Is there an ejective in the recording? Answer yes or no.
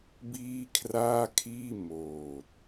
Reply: no